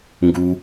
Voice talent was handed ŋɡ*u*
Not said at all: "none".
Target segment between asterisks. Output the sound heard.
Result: u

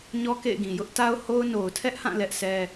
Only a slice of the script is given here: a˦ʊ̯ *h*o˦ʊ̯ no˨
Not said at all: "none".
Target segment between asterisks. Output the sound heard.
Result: h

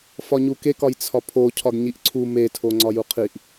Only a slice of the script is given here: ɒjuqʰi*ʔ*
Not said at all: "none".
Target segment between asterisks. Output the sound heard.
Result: ʔ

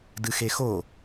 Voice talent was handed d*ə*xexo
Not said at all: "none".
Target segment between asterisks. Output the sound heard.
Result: ɨ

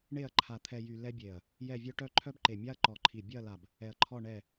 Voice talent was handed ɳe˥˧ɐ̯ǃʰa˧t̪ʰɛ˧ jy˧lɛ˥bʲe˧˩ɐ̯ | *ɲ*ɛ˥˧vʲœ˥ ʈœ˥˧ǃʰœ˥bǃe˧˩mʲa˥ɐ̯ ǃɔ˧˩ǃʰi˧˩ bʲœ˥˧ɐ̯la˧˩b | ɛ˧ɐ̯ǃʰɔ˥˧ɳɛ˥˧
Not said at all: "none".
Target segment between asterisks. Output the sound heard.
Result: j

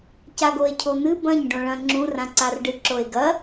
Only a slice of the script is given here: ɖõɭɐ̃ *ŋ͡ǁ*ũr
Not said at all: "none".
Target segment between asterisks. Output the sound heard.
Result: ŋ͡ǁ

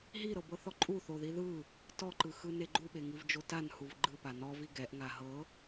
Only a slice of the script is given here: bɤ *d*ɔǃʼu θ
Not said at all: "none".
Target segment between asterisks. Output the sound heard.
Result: θ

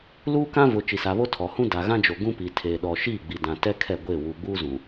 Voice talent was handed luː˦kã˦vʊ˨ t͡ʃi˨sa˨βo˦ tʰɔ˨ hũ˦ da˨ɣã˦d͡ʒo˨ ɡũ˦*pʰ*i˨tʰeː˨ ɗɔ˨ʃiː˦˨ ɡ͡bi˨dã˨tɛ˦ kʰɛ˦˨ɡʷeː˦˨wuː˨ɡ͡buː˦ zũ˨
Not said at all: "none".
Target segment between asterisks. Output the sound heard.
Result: p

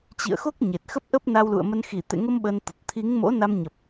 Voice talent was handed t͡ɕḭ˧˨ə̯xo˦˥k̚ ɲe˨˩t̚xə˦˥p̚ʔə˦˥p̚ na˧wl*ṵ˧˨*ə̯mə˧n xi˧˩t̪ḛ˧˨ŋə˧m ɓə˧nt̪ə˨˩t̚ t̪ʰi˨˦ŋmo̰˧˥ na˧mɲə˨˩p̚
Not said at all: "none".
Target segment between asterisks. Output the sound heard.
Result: ṵ˧˨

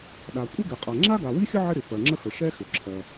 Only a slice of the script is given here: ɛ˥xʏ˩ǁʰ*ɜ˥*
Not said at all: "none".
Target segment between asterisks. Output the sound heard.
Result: ɜ˩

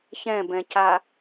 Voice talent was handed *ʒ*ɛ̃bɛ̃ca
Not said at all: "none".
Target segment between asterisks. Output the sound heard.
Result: ç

